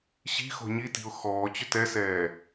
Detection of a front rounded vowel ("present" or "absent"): present